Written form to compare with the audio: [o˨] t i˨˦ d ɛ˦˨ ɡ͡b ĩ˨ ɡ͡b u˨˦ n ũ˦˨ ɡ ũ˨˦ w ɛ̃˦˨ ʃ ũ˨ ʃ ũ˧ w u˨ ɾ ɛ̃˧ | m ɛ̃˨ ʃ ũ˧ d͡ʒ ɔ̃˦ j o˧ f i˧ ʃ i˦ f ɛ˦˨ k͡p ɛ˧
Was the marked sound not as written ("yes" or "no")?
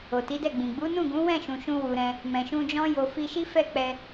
no